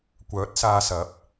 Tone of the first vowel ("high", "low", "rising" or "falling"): rising